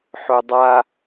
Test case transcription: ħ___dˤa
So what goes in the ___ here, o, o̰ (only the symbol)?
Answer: o